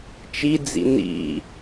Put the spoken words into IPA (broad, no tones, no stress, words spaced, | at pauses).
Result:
t͡ʃid͡zḭ nḭ